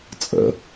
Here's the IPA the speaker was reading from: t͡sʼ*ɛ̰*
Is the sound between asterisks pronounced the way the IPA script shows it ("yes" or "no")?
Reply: no